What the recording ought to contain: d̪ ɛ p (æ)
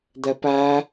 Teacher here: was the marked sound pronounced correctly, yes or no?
yes